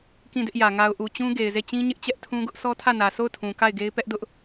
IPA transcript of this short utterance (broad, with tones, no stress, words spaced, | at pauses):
kĩ˦˨dɪ˦ʔjä˨ ŋa˨ʊ̯ʔu˨t͡ɕũ˦ ɡe˨ɪ̯ze˦˨ t͡ɕĩ˦ ɲɪ˦ʔt͡ɕɛ˦ʔtʰũ˦ɡʊ˦ʔ sɔ˦tʰä˦˨nä˨ so˦˨ʊ̯tʰũ˨ ka˦˨ɪ̯ɡe˦ɪ̯ pɛ˦ʔdʊ˦ʔ